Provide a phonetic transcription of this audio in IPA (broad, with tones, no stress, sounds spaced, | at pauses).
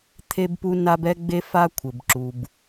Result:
t̪ʰ e˥ b p u˥ n a˥ b ɛ˥ ɡ͡b e˥ f a˥ kʷʰ ɘ˩ b ǁ u˩ b